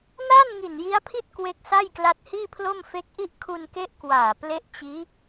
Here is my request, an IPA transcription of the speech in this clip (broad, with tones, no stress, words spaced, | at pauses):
na˥˩n ŋi˨˩nji˦˥a̯pʰi˥˩t̚ kwe˦˥k̚sa˥˩jkla˦˥t̚ hiː˥˩pʰlo˥˩mfe˦˥k̚ʔi˥˩ʔ kʰu˧nke˦˥ʔ kwaː˨˩ ple˦˥ʔt͡ɕiː˦˥